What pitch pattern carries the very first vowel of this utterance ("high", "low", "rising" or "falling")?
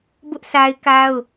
high